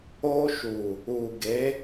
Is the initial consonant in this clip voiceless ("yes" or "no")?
yes